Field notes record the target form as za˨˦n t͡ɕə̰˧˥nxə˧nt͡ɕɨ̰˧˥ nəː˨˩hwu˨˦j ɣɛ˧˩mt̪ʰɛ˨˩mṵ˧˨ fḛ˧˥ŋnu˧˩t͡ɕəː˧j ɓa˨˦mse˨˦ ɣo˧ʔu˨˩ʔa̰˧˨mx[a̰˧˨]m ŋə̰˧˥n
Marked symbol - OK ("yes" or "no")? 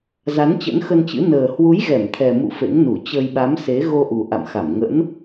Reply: no